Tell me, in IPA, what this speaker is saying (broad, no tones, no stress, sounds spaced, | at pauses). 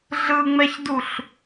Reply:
ɮ ɯ ŋ͡m ɛ ç d u ɬ